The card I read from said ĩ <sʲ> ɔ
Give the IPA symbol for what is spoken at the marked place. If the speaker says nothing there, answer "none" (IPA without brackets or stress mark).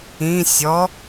sʲ